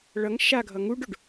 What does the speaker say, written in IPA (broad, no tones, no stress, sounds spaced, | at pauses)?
ɭ ʌ ŋ ʃ a ɡʱ ʌ ŋ u ɖ o ɖ